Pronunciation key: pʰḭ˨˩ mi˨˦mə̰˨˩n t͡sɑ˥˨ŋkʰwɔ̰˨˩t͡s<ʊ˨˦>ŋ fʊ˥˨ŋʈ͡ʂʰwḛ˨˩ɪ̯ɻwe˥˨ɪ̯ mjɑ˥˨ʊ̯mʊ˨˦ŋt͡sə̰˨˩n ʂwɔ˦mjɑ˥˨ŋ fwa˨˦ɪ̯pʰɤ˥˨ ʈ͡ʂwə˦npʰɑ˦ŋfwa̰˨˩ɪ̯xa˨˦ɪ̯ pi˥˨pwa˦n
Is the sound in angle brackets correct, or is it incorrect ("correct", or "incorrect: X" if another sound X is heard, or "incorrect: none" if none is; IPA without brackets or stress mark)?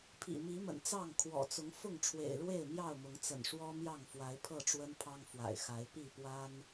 correct